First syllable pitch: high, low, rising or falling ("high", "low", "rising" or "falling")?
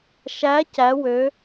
rising